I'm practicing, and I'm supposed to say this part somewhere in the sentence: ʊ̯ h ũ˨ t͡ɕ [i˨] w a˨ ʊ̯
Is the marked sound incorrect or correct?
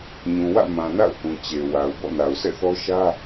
incorrect